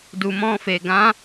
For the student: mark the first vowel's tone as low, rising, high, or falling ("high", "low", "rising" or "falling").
low